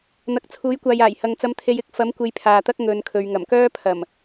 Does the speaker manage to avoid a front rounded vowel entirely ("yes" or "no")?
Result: no